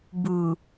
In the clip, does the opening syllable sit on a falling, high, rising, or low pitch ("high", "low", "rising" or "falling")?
low